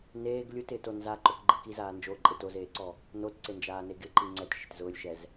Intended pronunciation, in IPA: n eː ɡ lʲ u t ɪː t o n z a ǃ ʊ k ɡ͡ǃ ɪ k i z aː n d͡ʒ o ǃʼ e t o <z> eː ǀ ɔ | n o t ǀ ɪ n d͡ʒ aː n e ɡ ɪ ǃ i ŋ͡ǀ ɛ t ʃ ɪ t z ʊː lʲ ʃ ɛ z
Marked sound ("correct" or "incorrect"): correct